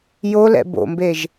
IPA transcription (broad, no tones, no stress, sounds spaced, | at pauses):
j o l ɛ̰ b o̰ m b e ʒ